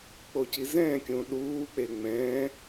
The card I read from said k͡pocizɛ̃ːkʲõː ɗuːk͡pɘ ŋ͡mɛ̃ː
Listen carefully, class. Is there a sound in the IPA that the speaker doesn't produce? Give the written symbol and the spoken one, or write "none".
ɘ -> e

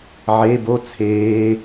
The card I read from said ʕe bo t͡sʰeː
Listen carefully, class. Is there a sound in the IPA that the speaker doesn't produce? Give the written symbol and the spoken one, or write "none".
none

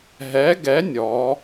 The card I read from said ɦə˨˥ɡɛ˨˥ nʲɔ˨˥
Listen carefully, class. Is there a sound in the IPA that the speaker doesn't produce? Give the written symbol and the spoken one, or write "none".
ə˨˥ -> ɛ˨˥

